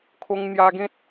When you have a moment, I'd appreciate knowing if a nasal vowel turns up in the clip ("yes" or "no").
yes